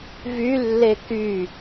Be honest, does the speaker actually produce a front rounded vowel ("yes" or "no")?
yes